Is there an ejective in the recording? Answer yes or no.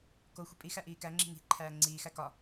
yes